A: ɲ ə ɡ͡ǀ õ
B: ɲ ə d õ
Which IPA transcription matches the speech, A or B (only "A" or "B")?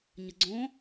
A